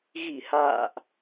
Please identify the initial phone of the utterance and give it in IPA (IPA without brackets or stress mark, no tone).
ɣ